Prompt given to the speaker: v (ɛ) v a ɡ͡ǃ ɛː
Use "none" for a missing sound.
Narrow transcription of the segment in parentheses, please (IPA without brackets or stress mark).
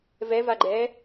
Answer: ɛ